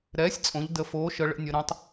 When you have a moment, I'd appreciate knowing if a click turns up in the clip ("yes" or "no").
no